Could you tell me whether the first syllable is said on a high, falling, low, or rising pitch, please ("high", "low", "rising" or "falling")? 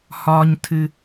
low